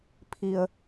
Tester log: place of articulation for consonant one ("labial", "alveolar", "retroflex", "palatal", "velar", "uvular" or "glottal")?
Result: labial